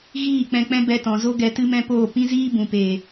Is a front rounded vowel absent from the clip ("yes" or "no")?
yes